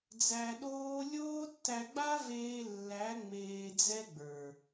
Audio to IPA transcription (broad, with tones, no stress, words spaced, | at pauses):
d͡zæ˧ɗoː˦ lʲoː˦tːæ˧ɡ͡ba˦veː˧ lːæ˨˦ ŋ͡meː˧d͡zɛ˦ɡ͡bə˞˨